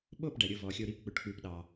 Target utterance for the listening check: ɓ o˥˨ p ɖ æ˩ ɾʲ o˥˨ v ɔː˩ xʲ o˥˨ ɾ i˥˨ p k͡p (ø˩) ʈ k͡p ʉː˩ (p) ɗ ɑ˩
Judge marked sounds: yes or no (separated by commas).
yes, yes